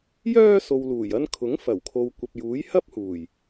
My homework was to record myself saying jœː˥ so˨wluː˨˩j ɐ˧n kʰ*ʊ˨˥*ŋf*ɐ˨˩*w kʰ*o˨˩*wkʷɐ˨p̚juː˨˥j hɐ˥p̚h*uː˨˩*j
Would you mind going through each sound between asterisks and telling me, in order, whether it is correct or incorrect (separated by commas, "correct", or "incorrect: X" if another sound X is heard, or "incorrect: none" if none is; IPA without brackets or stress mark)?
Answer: correct, correct, incorrect: o˨, correct